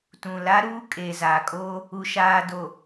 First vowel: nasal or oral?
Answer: nasal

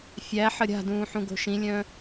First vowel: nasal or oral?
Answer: oral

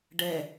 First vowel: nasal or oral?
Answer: oral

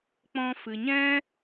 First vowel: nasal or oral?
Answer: nasal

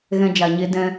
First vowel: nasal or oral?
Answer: nasal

